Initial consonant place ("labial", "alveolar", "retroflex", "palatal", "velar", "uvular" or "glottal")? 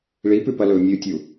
retroflex